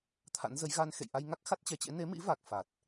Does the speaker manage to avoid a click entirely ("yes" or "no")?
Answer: yes